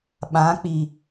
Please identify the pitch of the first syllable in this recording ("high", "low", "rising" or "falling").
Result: rising